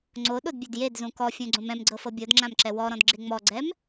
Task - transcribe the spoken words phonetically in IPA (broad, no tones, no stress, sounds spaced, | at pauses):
ŋ͡ǀ o ɗ o d bʲ e d j e d z ũ k ɔ fʲ õ ɡ͡ǀ õ m ɛ̃ m ɡ͡ǀ ɤ f ɤ bʲ ɤ d ŋ͡ǁ ã m ǁ ɛ w ɔ ɾ ɔ̃ d ɡ͡ǁ e ŋ͡m ɔ ɡ͡ǀ ɛ m